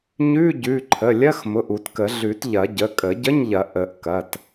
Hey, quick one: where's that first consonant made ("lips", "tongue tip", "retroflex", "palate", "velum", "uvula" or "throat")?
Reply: palate